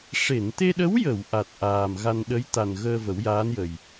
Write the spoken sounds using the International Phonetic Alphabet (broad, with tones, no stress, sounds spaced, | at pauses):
ʂ e˨˩˨ n t̪ e˧ ɗ ə˧˥ w j ə˨˩˨ w ʔ a˨˩ t̚ ʔ aː˨˩ m ɣ a˧ n ɗ ə˧˥ j t̪ a˨˩ n ɣ əː˧ v ə˨˩˦ w j aː˧˥ n j ə˨˩ j